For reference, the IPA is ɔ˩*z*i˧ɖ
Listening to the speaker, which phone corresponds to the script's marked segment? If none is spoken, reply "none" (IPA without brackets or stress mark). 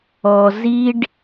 z